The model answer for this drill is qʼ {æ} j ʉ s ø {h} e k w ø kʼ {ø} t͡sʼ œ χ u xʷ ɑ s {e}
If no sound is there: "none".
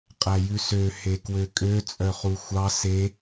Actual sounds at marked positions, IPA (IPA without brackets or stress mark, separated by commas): æ, h, ø, e